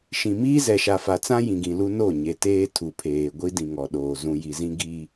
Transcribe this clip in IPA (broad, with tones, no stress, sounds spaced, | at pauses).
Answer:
ʃ ĩ˨ m iː˦ z ɛ˨ ʃ a˨ f a˨ t͡s ã˦ j ĩ˨ ɡ ĩ˨ l u˦ n o˦˨ ɲ e˨ t eː˦ tʰ u˨ pʰ eː˨ ɡʷ i˦ d ĩ˨ ŋ ɔ˨ ɗ oː˨ z ũ˨ j i˨ z ĩ˦ ɡ i˦